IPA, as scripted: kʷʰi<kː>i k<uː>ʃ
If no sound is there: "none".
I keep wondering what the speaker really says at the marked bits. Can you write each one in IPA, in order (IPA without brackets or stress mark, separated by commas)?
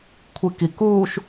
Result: k, uː